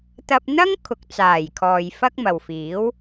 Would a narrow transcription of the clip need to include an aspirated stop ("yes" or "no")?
yes